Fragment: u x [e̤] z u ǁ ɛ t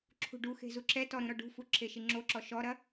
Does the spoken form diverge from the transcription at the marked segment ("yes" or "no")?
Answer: no